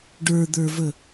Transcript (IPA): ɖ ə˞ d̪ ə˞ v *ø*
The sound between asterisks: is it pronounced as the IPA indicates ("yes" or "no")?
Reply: no